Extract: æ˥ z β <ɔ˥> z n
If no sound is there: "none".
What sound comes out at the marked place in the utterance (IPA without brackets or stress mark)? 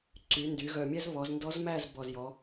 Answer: ɔ˩˧